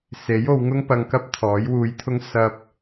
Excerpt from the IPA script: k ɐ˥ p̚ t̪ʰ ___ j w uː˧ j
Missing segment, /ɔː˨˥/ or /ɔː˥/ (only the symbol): ɔː˨˥